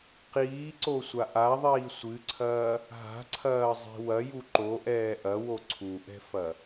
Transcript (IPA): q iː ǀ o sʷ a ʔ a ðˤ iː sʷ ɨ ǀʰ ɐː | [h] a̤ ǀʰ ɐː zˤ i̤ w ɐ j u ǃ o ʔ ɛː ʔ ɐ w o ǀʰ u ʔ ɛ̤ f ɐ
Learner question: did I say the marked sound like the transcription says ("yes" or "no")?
no